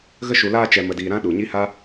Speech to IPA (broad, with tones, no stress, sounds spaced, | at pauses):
ɣ ə˧ ʃ u˨ l aː˧ t͡ʃ ɛ˨ m ə˨ d iː˨ ɾ ã˦ ɗ u˨ ɲ i˦ h a˦